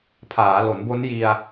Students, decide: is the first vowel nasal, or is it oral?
oral